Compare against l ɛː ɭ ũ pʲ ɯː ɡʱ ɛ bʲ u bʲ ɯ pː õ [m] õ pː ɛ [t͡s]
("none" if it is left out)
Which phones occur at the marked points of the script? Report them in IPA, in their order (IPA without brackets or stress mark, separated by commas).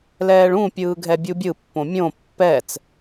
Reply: mʲ, t͡s